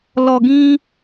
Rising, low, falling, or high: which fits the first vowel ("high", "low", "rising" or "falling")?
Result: low